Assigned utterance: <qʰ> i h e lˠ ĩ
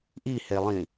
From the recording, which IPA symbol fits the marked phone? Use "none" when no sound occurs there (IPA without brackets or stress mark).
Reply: ʔ